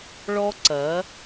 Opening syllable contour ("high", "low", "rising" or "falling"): high